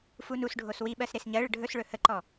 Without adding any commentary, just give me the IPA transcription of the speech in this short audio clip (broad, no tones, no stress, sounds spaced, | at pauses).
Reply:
f u n u s ɖʱ o s w i ɓ ɜ s ɾ e s ɲ ɜ ɭ ə ɖʱ ɵ s ɭ ɵ h ə ǃ ɔ